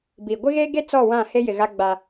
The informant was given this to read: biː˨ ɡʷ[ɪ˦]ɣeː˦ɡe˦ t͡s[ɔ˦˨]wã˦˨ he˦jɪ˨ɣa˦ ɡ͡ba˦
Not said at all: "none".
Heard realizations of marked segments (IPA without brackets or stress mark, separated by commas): ɪ˦, ɔ˦˨